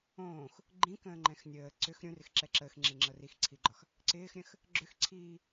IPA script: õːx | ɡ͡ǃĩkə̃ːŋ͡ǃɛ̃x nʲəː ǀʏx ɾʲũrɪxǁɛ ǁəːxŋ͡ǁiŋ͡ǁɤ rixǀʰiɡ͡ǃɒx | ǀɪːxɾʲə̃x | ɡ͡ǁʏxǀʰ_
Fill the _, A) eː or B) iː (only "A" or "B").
B